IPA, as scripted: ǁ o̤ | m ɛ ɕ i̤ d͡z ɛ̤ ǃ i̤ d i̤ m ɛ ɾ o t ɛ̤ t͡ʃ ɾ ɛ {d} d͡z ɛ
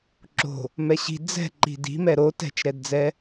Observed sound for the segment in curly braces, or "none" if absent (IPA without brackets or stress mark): d